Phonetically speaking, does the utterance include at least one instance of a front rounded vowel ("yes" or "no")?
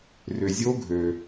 yes